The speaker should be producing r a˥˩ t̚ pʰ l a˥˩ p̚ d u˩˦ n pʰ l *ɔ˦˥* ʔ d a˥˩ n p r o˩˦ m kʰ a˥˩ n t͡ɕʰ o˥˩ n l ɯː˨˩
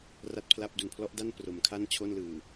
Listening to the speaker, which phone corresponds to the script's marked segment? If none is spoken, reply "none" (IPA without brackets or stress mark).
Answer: ɔ˦˥